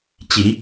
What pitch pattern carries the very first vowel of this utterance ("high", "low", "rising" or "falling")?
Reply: rising